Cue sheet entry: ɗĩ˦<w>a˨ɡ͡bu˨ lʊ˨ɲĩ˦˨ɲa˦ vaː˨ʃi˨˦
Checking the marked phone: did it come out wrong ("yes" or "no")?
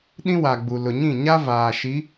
no